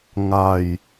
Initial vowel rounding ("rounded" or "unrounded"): unrounded